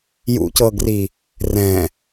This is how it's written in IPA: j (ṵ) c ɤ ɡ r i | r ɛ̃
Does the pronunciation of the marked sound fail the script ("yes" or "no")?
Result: no